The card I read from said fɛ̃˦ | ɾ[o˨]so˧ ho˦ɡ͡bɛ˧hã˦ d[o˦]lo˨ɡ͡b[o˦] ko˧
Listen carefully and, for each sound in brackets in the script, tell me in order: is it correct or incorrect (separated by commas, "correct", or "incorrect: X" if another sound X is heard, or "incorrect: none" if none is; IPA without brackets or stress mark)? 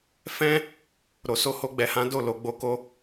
correct, incorrect: o˦˨, incorrect: o˧